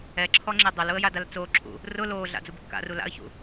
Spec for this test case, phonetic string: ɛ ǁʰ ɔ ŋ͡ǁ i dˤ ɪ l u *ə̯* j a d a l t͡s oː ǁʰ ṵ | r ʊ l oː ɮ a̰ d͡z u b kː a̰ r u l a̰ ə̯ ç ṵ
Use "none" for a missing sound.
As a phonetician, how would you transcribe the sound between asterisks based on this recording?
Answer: ə̯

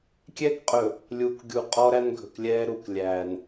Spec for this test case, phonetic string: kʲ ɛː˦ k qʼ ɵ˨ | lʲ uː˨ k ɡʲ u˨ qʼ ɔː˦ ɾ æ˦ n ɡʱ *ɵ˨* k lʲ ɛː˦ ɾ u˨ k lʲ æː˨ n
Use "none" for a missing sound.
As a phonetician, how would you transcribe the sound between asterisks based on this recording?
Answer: ɵ˨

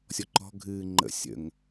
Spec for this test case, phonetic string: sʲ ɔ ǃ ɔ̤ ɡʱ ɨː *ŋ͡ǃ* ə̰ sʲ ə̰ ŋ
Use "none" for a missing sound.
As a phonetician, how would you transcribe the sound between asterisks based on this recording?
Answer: ŋ͡ǃ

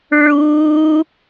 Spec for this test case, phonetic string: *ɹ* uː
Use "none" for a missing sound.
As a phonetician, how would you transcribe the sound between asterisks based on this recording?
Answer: ɹ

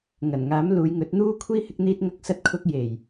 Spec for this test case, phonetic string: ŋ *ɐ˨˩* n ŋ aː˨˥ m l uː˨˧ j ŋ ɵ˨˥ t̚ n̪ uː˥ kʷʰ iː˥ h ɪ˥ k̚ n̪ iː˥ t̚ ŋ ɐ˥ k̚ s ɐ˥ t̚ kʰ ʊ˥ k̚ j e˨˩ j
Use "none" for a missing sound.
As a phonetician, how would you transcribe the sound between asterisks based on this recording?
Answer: ɐ˨˩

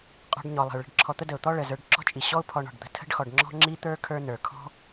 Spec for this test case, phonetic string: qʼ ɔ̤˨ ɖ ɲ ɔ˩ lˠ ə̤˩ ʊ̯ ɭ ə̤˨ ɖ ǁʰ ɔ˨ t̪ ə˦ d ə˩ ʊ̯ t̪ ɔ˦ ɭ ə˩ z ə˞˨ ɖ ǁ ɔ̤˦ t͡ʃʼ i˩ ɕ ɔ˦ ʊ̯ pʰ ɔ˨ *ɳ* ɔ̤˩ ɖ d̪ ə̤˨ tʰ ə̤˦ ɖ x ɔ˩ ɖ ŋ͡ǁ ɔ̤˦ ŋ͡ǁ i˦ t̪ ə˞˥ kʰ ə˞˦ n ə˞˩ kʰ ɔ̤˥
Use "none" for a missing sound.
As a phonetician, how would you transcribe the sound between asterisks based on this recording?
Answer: ɳ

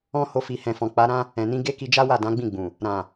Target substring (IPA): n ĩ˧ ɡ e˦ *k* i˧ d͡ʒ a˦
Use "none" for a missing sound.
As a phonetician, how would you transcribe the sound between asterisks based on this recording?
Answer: k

